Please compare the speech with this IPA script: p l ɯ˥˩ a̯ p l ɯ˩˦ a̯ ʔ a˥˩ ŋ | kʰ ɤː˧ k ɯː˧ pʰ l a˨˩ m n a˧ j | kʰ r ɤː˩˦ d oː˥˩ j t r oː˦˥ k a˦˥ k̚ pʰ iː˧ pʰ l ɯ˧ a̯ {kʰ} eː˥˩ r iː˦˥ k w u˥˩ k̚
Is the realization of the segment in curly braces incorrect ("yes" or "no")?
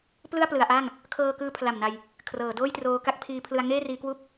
yes